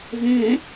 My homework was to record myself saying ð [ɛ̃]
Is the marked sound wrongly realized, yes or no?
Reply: no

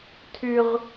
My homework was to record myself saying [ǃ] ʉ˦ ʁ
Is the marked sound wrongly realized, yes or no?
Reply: yes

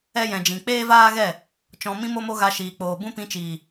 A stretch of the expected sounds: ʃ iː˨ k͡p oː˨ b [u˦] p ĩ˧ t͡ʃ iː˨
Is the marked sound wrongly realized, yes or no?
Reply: yes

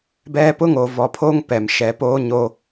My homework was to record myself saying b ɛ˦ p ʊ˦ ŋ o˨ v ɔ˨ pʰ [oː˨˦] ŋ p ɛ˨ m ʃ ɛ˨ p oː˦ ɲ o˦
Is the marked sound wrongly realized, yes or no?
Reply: yes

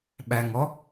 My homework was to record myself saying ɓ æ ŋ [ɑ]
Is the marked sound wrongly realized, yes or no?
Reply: yes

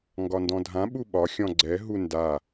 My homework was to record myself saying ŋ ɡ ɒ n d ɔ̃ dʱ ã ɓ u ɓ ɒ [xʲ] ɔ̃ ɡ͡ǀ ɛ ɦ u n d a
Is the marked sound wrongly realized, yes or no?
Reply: no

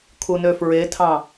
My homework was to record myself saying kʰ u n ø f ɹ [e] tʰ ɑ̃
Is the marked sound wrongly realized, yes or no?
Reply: no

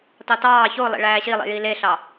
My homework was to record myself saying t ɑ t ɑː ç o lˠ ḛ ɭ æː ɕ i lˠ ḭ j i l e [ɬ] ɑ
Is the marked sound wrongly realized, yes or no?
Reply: no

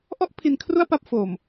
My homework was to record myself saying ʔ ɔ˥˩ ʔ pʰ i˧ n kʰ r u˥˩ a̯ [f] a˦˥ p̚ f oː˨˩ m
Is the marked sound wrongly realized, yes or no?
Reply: yes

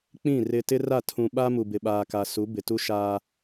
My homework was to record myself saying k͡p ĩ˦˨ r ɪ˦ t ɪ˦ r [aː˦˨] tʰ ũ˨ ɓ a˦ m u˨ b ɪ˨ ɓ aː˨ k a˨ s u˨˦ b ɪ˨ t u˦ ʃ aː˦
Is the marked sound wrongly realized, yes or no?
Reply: yes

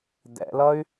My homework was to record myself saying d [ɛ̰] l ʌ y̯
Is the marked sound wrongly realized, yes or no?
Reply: no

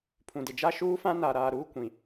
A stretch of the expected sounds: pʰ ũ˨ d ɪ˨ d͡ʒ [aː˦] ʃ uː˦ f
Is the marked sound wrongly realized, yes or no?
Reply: yes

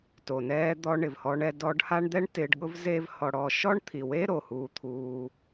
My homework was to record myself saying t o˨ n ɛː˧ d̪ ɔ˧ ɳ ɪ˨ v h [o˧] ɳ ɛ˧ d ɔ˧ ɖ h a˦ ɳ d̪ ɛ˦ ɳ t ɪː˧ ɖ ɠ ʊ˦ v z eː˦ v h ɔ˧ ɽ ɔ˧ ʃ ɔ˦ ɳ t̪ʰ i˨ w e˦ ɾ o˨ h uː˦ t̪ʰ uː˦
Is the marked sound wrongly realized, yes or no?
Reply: yes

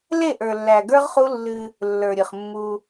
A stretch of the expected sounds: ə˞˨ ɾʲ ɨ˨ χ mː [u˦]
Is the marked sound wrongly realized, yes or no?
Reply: no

